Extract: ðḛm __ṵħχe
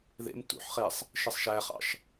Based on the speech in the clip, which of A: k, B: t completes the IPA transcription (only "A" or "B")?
B